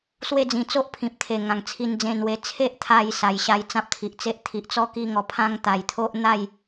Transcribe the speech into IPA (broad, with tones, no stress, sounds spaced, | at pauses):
s w e˦ d͡z ĩ˧ t͡s o˦ ʔ pʰ ĩ˨ p̚ t̪ʰ e˨˩ ŋ ã˧ ŋ t͡sʰ i˦ n d͡z ẽ˥˧ n w e˦ t͡sʰ e˦ ʔ t̪ʰ a˧ j s a˨˩ j ɕ a˧ j t͡s ã˦ p̚ t̪ʰ i˨ ʔ t͡s e˦ ʔ t̪ʰ i˨ ʔ t͡s ɔ˦ k i˦ ŋ ɔ˧ pʰ ã˦ ŋ t̪ a˨˩ j t̪ʰ o˦ ʔ n̪ a˥˧ j